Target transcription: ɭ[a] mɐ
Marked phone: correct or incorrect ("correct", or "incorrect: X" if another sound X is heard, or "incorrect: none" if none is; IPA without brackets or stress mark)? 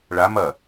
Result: correct